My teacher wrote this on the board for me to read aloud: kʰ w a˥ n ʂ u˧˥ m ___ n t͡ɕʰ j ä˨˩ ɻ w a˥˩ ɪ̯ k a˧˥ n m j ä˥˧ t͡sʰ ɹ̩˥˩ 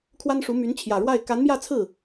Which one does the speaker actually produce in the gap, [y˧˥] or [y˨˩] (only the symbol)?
y˧˥